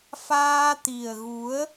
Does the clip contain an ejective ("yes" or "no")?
no